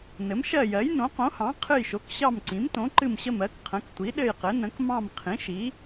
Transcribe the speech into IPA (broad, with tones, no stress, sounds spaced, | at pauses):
n ɘ˩˥ m ʃ ɜ˦˨ j ɜ˩˥ j n õ˩˥ q õ˩˥ h ɑ̃˩˥ qʰ ɨ˦˨ j ʃ o˩˥ k ɕ ɑ˦˨ m ǀ ĩ˩˥ m t õ˩˥ ǃ ɨ˦˨ m ɕ ə˦˨ m ɜ˩˥ k qʰ ə̃˩˥ k tʷ i˩˥ ɗ ɘ˦˨ j q ɘ˩˥ n ə̃˩˥ k m ɑ̃˦˨ m qʰ ĩ˩˥ ʃ i˩˥